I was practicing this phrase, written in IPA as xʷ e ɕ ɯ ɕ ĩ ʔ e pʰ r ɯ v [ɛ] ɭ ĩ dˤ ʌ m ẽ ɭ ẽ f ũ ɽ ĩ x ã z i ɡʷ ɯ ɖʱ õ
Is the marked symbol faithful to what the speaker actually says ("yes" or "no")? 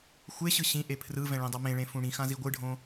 no